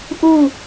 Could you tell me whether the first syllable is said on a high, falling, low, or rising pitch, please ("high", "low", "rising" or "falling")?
falling